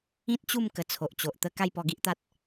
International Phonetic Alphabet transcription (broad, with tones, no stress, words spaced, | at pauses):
ĩ˦t̚t͡ɕu˥˧m kə˧t͡sʰo˨ʔt͡ɕo˨ʔ t̪ə˦ ka˥˧jpɔ˧ɡi˦ʔt̪a˦t̚